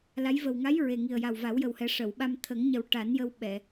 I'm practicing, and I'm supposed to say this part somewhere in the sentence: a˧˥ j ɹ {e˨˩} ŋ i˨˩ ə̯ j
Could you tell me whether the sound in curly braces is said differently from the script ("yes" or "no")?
no